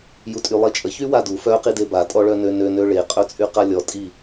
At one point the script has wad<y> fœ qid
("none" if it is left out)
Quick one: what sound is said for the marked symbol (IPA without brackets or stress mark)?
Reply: u